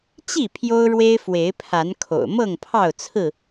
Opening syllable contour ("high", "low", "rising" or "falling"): falling